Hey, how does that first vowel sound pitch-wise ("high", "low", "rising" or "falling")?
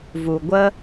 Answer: low